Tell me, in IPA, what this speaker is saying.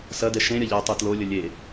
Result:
s ɐ d ɛ ʃ ẽ ɾʲ ɐ ʎ ɛ u̯ tˤ u t l o lʲ ə lʲ e

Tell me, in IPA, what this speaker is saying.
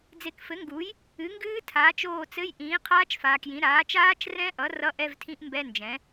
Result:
d͡z e˨ k f ɘ˩˥ ŋ ɡ u˩˥ j | ɨ˩˥ ŋ ɡ ɨː˦˥ tʰ aː˩˥ t͡ʃ oː˦˨ t͡s ɘ˧˥˧ j ʔ ĩː˩˥ qʰ aː˦˥ t͡ʃ f aː˨ k j ĩ˩˥ ɾ aː˩˥ t͡ʃ aː˦˥ t͡ʃ r ɛ̃˦˥ ʔ ʌ˩˥ r ʌ˧˥˧ ʔ ɛ˧˥˧ v tʰ ĩ˦˥ ʔ m b ɛ˧˥˧ n d͡ʒ ɛ̃˩˥

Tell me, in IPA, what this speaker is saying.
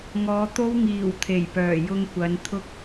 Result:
ŋ ɔː˨˧ t̪ o˥ w ŋ iː˨˩ w t̪ʰ e˨˩ j p œː˨˩ j ʊ˧ ŋ kʷ ɐ˨˧ n t̪ʰ ʊ˥ k̚

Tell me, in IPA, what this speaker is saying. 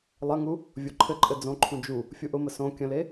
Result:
lˠ ɘ ŋ u | vʲ o ǃʰ ɘ ǃʼ ɘ d͡z õ ǃʰ ũ d͡ʒ u | fʲ u ʔ ʊ m ə s õ kʲ ə̃ l e

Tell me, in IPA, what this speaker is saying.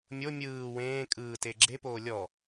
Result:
mʲ o mʲ ɯː w ẽː kʼ ɯː t e ɡ͡ǁ e p oː lʲ ɔ

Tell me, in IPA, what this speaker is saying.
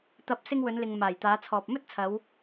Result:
t̪ ɐ˨˥ p̚ s ɪ˧ ŋ w ɵ˨˧ n l ɪ˨ ŋ m aː˨˩ j t̪ aː˨˧ t͡sʰ ɔː˨ p̚ m ɵ˥ t̚ t͡sʰ ɐ˨˧ w

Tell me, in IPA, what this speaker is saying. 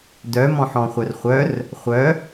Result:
d œ m ɔ̃ ħ ɔ̃ χʷ œ r χʷ œ r | χʷ œ

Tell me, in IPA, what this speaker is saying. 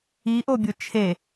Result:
i ʔ o bʲ o t͡ʃʰ e

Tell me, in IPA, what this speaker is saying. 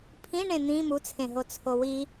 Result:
pʰ ĩ ɳ ẽ n̪ ĩ m u t͡sʰ ẽ ɦ o t͡sʰ o w i

